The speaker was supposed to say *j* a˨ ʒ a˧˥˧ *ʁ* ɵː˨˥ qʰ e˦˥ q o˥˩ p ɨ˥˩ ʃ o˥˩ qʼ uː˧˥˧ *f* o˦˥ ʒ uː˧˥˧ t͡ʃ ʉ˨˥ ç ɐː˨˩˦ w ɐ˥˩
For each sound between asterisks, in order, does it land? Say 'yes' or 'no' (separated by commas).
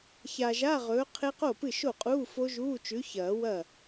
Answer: no, yes, yes